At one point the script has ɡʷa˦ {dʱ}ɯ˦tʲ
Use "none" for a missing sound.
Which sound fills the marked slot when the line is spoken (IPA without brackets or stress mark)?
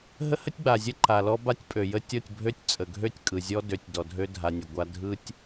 dʱ